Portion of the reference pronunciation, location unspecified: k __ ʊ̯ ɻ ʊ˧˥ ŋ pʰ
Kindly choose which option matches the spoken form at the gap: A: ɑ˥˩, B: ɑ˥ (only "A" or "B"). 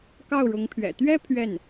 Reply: A